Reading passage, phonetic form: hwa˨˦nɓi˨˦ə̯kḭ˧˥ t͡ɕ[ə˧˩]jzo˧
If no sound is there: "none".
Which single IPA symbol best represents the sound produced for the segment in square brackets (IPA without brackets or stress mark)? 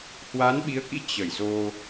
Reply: ə˧˩